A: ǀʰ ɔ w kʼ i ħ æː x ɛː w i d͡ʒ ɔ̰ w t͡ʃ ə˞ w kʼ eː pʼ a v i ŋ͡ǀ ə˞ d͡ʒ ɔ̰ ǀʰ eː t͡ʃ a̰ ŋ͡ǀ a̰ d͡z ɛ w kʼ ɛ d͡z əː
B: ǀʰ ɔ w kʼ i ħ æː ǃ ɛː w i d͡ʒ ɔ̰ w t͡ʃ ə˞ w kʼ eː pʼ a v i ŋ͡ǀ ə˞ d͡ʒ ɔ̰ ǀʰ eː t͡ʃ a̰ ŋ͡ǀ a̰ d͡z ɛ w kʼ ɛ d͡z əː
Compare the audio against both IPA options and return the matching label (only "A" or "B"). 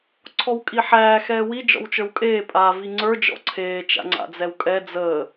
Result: A